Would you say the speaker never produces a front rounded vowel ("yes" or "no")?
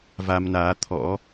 yes